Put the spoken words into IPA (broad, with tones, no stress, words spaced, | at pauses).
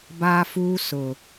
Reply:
baː˦fuː˦ sʊ˨